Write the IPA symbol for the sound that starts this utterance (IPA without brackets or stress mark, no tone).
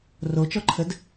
r